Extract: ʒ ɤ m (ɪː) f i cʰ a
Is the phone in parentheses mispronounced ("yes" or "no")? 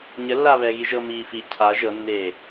yes